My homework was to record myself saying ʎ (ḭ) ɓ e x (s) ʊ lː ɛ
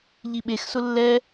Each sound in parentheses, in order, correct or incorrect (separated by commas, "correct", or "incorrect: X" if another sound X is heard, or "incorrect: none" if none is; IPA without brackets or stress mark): incorrect: i, correct